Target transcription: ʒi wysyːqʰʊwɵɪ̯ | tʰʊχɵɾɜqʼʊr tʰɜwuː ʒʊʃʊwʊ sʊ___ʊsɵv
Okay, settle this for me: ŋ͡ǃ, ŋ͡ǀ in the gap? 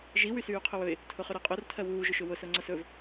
ŋ͡ǀ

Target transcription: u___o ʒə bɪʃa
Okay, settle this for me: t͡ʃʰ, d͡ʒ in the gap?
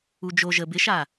d͡ʒ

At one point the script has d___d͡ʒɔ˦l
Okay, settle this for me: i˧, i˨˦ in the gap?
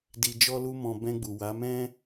i˧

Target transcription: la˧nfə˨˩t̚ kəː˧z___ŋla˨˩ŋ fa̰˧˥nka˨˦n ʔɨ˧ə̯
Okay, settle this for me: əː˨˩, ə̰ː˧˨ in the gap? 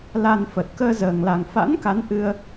əː˨˩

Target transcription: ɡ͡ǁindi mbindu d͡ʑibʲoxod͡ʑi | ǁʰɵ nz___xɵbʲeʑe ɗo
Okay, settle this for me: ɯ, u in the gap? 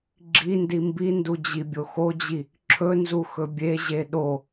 u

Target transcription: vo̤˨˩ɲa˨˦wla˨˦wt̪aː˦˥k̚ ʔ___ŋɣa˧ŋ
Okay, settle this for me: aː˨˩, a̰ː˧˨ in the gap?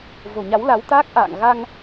a̰ː˧˨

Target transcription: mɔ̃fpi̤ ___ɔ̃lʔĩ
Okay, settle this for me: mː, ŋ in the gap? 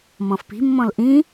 mː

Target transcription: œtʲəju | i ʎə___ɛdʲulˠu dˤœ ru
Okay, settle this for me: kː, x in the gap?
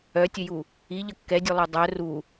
kː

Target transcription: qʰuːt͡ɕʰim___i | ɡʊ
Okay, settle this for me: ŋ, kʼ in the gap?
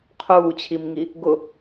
ŋ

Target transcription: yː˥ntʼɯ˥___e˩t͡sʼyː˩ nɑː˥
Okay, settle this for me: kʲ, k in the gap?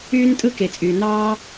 k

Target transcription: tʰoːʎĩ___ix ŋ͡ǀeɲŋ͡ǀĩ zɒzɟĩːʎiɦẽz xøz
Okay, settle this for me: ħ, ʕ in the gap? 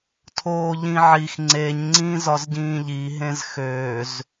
ʕ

